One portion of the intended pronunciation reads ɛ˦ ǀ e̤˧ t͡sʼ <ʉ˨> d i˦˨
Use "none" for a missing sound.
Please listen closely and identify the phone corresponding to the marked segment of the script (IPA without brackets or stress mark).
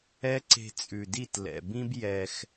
ʉ˨